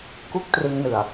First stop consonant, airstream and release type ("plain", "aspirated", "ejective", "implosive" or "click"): plain